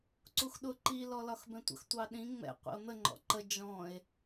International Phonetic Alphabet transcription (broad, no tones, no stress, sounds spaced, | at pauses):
ǀ u x ɗ ʊ ǃ i l ɔ l ɒ x b ɛ̃ tʷ ə̰ x tʷ ɑ ɗ ĩ ŋ͡m ɛ̰ qʷ ḭ o̯ n̪ ə ŋ͡ǃ ɔ̰ ǃ ə d͡ʒ ɔ̃ e̯